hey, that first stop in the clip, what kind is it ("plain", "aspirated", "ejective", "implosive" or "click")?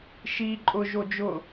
click